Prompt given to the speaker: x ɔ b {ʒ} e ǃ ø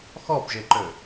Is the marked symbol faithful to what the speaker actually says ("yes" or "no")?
yes